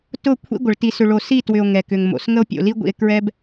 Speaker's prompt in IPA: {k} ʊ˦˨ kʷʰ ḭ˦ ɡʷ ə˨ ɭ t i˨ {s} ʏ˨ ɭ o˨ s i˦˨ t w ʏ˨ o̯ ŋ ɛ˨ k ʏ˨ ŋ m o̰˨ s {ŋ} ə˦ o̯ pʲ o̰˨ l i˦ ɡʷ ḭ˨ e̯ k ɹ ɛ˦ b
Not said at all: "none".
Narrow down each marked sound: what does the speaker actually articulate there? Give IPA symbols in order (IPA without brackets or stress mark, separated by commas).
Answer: t, s, ŋ